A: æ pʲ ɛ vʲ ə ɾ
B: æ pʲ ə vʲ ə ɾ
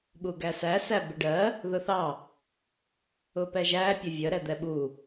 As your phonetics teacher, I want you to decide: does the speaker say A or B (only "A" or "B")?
B